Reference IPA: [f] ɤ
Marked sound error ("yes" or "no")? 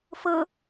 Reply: no